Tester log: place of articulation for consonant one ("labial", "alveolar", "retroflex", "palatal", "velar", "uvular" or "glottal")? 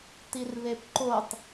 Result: alveolar